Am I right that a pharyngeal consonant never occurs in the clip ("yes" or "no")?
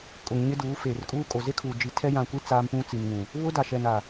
yes